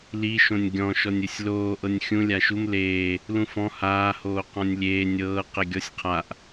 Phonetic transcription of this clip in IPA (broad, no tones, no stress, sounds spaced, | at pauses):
l i ʃ õ nʲ ɡʲ ɔ̃ ʃ ɔ nʲ ɯ sʲ l oː ʔ ɤ nʲ xʲ ũ lʲ a ʃ u m l eː | l ũ f ɔ̃ h aː h oː q ɔ̃ nʲ lʲ eː nʲ ɤː q e ɡʲ ɔ sʲ qʰ a ʔ